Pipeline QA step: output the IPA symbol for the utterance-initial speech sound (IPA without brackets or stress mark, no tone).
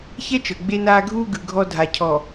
ç